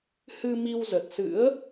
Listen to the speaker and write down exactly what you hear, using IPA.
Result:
h ɨ˧ m i˧ w z ə˨˩ t̚ s ɨ̰˧˥ ə̯

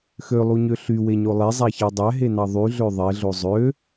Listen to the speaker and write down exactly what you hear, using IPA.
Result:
x ø lˠ u ɲ ø ɬ y w e ɲ o lˠ e zˤ æ ç ɑ dˤ æ ɦ e n ɑ ðˤ y ɮ ø ðˤ e ɮ o zˤ ø

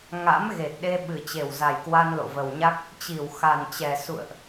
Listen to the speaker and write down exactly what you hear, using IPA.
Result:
ŋ a̰˧˥ m ɣ e˨˩ t̚ ɗ e˧ ɓ ɨ˨˩ t͡ɕ e˨˩ w z a˨˩ j k w a˧ n l o̰˧˨ v ə˨˩ w ɲ a˦˥ k̚ | t͡ɕ i˧˩ w x a˨˩ n t͡ɕ ɛ˨˩ s ṵ˧˨ ə̯ ʔ

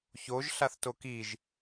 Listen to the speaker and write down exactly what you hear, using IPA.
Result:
ç o ʒ ɬ a θ t o k i ʒ

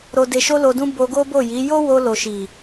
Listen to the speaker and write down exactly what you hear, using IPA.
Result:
ɾ o˧ d e˧ ʃ o˦ l o˧ d ũ˦ b o˧ ɡ o˦ b o˦˨ j i˨˦ j o˦ w o˧ l o˨ ʃ i˨

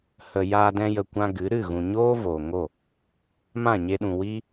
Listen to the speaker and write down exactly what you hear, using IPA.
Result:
h ə˨ j aː˧ d ɛ̃˧ j ə˨ kʷ ã˧ ɡ ɨ˨˦ ɾ ɨ˦˨ ɣ ũ˨ ɲ oː˦ v oː˨ ŋ o˦˨ | m ã˦˨ ɲ e˧ ɗ ũ˨ w iː˦

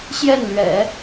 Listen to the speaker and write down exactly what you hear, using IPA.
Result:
ɕ j ɛ˥˩ n l ɥ ɛ̰˨˩˦

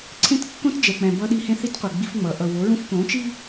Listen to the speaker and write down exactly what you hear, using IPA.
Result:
ǀʰ ẽ˦ t kː õ˦ t d͡ʒ ɛ˨ k͡p ɛ̃˨ b ʌ˦ ɗ i˦ h ẽ˦ θ i˦ t qʷ ɛ˨ ɡ͡b i˦ f ŋ͡m ʌ˨˦ ʔ ʌ˨ w o˨˦ ɹ ũ˦ f k õ˨˦ t͡ʃ i˦

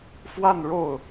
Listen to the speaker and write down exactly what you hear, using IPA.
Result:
f w a˥˧ n ɻ o˥˩ ʊ̯

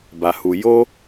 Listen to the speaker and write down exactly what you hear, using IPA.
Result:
b a˧ h u˧ j o˦

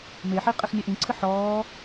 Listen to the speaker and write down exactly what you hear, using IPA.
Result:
m e ħ i qʼ ɘ x nʲ ɘ ʔ ĩ ǀʰ ɨ ħ ɔː

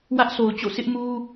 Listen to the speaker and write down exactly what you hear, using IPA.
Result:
w ä˦ ʔ sʰ o˨ ʊ̯ t͡ɕ o̰˦˨ s ɪ˦ ʔ m u˦

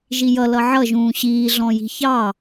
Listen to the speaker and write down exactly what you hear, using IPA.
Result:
ʒ i j ʌ l ʌ ʕ ʌ ʒ ũː ɕ iː ɮ ɔ̃ j i̤ ç ɑ

